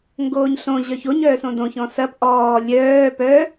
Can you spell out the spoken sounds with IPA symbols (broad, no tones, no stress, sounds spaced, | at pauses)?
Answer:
ŋ ɡ oː ɲ ɬ õ ʑ œ ç o ɲ œː s õ d õ ç ɔ̃ s ɐ p ʔ ɔː lʲ œː p œ